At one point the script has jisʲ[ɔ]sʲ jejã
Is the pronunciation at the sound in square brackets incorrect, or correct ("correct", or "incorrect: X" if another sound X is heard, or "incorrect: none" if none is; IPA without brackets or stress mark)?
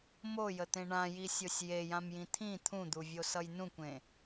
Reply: incorrect: o